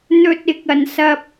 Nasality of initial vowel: oral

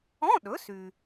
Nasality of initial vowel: nasal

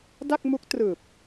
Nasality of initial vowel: oral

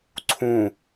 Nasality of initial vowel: nasal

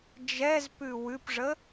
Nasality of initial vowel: oral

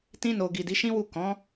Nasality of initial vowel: nasal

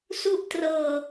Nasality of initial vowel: oral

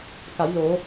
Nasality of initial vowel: oral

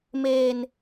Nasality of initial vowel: oral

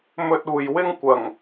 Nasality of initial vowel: oral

